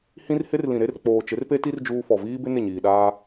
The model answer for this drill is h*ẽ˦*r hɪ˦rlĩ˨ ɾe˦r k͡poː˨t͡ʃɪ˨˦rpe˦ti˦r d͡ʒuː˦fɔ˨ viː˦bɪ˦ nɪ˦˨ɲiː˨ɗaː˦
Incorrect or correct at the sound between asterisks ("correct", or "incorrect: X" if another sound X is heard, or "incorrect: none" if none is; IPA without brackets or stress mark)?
incorrect: ĩ˦